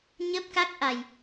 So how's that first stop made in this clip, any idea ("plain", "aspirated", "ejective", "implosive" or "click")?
plain